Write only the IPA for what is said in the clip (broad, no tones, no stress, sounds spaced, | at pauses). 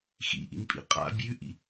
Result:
x ḭ ʔ ḭ n pʼ ḭ qʼ a̰ bʲ ʉ ʔ ḭ